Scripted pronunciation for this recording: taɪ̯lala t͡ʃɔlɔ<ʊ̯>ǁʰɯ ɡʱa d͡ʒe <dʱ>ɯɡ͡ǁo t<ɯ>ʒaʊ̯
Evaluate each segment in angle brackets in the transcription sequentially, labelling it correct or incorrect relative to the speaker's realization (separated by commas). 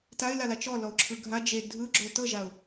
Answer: correct, correct, incorrect